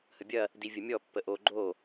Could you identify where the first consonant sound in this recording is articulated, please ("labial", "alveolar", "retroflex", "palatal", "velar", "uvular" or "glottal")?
glottal